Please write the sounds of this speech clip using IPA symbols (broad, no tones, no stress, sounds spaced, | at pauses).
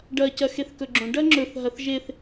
ɖ ɐ c ɐ x e θ k ɵ ɡ͡ǁ õ ɖ ɐ ŋ͡ǁ ɵ θ ɦ ɐ θ ʒ e θ